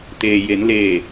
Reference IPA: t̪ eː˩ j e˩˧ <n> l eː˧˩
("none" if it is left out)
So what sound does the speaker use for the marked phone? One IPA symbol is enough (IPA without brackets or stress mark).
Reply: n